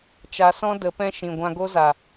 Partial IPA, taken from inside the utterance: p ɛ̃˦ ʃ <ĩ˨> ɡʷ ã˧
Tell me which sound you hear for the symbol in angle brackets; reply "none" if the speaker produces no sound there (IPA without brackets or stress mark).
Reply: ĩ˨